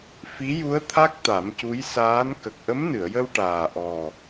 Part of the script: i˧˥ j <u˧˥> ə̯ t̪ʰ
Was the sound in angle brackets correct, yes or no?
yes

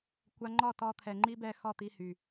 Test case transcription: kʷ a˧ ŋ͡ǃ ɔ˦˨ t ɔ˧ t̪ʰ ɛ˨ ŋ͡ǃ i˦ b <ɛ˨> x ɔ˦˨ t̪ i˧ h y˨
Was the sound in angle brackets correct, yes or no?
no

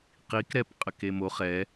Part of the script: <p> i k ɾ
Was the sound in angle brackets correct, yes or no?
no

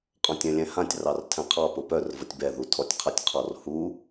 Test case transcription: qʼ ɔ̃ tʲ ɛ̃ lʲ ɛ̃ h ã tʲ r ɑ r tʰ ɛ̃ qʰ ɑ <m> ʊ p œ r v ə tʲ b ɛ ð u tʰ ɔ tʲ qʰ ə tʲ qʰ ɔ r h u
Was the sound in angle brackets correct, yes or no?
no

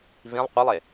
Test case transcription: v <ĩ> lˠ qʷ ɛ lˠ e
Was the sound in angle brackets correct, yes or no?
yes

